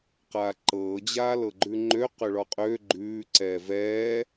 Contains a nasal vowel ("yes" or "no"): no